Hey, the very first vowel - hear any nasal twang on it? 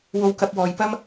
no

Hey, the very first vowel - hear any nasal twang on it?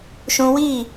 yes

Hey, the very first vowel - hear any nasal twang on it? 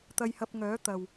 no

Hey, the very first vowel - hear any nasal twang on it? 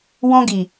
yes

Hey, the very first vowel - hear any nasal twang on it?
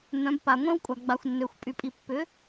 yes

